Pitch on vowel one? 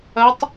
rising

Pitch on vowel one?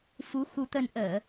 rising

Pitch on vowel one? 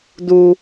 low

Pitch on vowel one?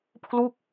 falling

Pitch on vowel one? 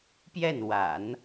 falling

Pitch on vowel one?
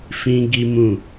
high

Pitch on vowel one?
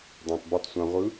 low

